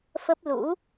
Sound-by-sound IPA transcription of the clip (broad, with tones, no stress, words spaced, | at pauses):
fə˦˥p̚ lṵ˧˥